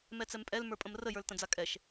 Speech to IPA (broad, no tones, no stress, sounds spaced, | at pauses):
m ɛ t͡s ɛ m pʼ ɛ l m ə˞ pʼ ə̃ m r ə j ə˞ l t ə̃ d͡z a kʼ ɛ ʃ